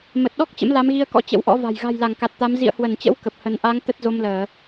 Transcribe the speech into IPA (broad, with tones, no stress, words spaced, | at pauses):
mə˨˩t̚ɗɔ˦˥k̚ t͡ɕə̰˧˥mla˨˦mɣi˧ə̯kɔ̰˧˥ t͡ɕə̰˧˥wʔɔ̰˧˥va̤˨˩j ɣa̤˨˩jla˧˩ŋ ka˨˩t̚t̪a˨˦m zḭ˧˨ə̯hwə˧˩nt͡ɕə̰˧˥w kə˨˩p̚hə˨˦n ʔa˨˦ŋ t̪ə˦˥t̚zo˧mləː˧˩˨